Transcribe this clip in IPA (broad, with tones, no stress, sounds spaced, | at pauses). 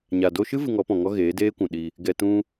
ɲ a˨ d o˧ ʃ ɨ˦ v ɨ˧ ŋ ɔ˨˦ p ɔ̃˨ ŋ ɔ˦ ɣ eː˨˦ d eː˦ kʷ ũ˨ ɗ i˧ | ɡ ɛ˧ t ũ˦